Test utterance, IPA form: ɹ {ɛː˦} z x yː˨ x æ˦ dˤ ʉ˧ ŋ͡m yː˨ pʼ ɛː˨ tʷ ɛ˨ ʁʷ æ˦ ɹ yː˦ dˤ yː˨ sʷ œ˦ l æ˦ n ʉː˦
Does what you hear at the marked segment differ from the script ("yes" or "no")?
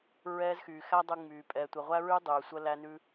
no